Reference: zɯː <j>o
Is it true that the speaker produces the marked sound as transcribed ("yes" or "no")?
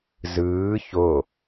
no